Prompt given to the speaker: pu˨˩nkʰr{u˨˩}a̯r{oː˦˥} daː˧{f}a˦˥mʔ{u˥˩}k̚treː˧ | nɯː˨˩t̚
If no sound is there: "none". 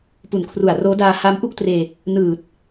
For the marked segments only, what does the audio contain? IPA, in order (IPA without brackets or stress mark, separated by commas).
u˨˩, oː˦˥, h, u˥˩